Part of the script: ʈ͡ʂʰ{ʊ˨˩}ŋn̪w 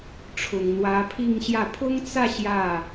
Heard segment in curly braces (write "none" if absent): ʊ˨˩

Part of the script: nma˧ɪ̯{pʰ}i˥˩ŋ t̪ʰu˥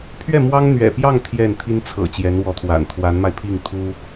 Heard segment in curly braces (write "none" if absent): pʰ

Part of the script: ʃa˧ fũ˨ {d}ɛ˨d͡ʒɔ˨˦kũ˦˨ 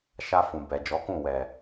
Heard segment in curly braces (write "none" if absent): b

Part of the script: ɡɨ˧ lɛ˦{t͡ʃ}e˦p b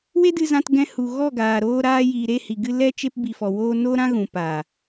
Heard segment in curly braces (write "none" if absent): t͡ʃ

